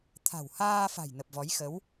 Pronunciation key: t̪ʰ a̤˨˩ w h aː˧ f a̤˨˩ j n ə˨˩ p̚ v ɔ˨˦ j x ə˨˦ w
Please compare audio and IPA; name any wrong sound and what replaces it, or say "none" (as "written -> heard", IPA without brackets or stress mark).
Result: none